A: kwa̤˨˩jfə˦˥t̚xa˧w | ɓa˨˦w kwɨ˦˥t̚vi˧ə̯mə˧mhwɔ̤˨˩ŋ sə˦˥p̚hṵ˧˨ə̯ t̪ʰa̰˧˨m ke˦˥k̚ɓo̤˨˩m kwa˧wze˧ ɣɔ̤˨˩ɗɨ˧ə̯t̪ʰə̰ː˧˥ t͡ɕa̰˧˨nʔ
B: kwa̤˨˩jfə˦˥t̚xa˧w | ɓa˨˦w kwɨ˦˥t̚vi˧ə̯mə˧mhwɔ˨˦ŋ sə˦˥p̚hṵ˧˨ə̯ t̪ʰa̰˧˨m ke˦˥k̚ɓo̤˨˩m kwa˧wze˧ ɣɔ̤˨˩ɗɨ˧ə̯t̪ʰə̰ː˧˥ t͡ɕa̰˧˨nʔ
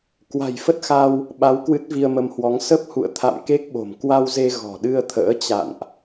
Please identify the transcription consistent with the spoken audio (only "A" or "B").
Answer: B